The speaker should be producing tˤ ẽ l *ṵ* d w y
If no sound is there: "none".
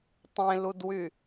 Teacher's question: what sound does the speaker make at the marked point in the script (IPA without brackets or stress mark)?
u